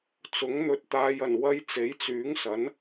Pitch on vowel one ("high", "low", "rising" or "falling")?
rising